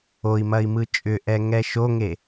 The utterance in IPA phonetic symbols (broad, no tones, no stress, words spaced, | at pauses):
oi̯mɐi̯mɯ t͡ʃʼʏʔɛ ŋɛʃoŋe